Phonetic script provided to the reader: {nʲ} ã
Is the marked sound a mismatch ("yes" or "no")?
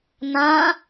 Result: yes